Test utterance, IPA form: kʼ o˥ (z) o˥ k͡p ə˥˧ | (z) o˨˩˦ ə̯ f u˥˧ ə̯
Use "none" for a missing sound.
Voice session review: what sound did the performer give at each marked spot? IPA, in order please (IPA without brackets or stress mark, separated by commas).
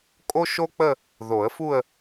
ʃ, ð